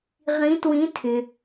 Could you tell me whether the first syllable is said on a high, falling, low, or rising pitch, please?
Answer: rising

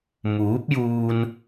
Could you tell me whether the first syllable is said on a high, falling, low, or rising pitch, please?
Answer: rising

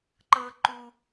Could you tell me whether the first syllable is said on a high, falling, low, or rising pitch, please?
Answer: high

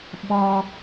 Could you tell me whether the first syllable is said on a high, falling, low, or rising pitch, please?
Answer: high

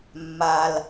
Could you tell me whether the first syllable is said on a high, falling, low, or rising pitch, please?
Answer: low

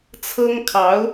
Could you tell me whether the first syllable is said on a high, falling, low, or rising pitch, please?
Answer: high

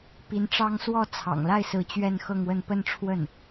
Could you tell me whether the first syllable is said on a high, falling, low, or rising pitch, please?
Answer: rising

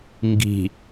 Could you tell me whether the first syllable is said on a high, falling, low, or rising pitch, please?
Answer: low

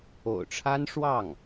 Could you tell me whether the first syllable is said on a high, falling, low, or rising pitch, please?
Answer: low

